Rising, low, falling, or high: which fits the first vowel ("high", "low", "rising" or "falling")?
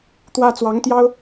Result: high